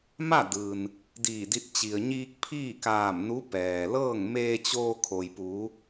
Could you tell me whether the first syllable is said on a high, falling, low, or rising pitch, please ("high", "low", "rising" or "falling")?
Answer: falling